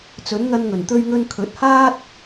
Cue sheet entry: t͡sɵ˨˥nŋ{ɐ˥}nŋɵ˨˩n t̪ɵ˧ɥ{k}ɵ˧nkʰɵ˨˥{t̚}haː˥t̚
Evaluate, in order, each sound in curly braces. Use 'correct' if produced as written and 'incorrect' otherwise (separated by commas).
incorrect, incorrect, correct